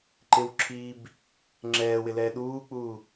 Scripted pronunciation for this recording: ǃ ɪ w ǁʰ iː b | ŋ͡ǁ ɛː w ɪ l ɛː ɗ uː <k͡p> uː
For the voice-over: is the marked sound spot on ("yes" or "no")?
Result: yes